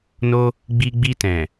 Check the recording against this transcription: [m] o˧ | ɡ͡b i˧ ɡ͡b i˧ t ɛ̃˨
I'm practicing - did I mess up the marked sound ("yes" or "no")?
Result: yes